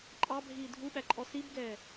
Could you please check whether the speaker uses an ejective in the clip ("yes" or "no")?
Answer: yes